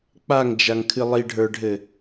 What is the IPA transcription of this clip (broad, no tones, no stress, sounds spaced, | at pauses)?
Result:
k͡p a ŋ d͡ʒ a ŋ kʰ ɨ lˠ i ɖʱ ə˞ ɖʱ ɘ